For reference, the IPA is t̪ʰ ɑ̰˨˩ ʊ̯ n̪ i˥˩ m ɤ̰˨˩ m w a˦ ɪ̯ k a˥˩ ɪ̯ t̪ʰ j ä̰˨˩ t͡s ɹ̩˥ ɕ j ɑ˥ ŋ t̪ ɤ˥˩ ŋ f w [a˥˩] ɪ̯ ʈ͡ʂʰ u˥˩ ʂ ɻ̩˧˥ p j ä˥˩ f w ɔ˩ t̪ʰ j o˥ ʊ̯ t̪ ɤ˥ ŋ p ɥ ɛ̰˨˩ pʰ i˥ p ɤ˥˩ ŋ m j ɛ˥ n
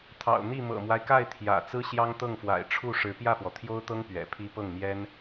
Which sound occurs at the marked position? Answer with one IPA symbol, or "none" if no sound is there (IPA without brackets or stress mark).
a̰˨˩